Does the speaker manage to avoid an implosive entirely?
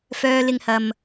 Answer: yes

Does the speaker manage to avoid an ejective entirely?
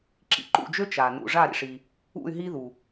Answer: yes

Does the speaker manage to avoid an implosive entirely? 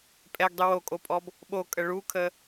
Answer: no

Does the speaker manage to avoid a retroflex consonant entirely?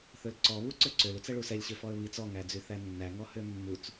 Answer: no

